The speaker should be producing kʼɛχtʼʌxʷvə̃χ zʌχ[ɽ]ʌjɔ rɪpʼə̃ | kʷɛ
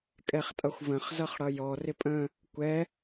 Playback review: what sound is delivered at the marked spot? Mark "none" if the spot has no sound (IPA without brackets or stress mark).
ɽ